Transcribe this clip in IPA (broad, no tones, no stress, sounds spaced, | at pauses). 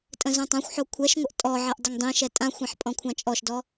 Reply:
tʼ ə̃ z õ tˤ ã xʷ ħ o kʷʰ ɛ ʃ ŋʷ ə ʔ tʼ ɔ ʕ ɛ ʔ dˤ ə ŋ dˤ ĩ ʃ ɛ tʼ ã xʷ ɛ̃ ħ pʼ ɔ̃ kʷʰ ã t͡ʃʼ ɔ ʃ d ɔ